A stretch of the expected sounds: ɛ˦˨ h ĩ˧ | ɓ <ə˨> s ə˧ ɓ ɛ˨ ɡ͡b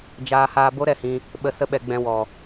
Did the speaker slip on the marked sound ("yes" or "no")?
no